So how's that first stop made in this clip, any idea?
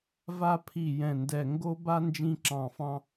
aspirated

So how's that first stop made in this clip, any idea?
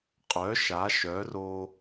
ejective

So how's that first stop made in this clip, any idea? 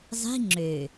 click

